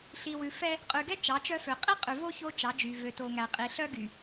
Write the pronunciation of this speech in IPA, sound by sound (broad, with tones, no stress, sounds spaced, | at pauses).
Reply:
ɬ i˨ w ʉ˨ f ɛ˦ | qʼ y˨ ɡ ɛ˦ t͡ʃ ɑ˨˦ t͡ʃ œ˦ f ø˨ qʼ i˦ qʼ y˨ v o˦ ç o˦ t͡ʃ ɑ˨˦ d͡ʒ y˨ v ø˨ t o˨ ŋ æ˨ qʼ i˨ ɬ œ˦ ɡ y˨